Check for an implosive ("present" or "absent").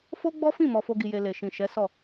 absent